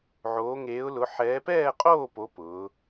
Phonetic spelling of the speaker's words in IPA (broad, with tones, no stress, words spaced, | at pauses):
ʕoː˨˦ ŋeː˨˦ʊ̯lʊ˨˦ ħɛː˨˦pɛː˥˨qʼoː˥˨po˨˦ pʊː˨˦